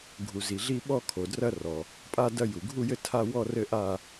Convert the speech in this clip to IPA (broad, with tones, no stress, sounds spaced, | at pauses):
ɡʱ u˩ z i˩ ɮ i˦˨ ɓ ɔ˦˨ kʰ o˩ d r ɐ˦˨ r ɔ˩ | pʼ a˦˨ d ɐ˦˨ j u˩ ɡʱ u˦˨ j ɘ˦˨ tʰ a˦˨ w ɔ˦˨ r ɘ˦˨ ʔ a˦˨